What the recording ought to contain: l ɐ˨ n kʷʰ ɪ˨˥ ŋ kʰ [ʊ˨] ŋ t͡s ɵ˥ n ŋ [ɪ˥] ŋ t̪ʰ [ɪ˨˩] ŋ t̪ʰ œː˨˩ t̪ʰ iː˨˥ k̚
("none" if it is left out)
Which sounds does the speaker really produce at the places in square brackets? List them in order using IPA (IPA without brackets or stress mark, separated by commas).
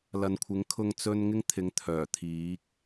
ʊ˧, ɪ˥, ɪ˨˧